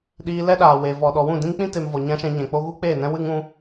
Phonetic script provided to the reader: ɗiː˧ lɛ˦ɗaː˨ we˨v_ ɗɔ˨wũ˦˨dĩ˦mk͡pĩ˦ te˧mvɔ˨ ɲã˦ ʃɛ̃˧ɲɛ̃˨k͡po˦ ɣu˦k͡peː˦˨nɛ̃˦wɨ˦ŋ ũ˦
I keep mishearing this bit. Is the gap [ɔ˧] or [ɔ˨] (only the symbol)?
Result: ɔ˨